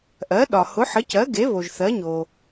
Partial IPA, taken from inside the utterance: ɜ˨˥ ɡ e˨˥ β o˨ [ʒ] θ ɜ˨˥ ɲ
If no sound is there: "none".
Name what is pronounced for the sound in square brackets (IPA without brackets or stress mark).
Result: ʒ